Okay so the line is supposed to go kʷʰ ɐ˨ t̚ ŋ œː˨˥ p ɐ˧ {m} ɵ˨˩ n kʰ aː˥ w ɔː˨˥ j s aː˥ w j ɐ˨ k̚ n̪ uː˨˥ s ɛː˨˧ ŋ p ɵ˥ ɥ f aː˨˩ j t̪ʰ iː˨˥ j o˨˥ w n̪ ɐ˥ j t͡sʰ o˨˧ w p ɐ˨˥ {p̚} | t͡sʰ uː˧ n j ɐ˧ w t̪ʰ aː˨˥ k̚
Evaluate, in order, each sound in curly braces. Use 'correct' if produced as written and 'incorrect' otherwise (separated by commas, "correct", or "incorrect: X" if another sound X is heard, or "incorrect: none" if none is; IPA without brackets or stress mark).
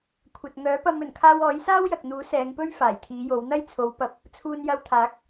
correct, correct